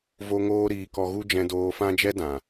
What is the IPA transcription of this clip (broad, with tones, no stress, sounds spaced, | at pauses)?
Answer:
v o˦ ŋ oː˦ ɾ iː˧ k ɔ˧ ɣ u˦ d͡ʒ ɛ̃˧ d oː˧ f ã˦ d͡ʒ ɛ˦ d ã˨